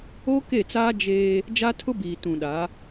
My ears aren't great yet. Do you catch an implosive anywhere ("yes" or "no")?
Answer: yes